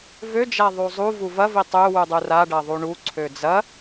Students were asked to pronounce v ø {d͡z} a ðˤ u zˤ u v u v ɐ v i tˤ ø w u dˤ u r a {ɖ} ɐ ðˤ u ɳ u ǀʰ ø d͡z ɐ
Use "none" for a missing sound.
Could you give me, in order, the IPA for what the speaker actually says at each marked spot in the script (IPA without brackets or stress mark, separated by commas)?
d͡ʒ, ɖ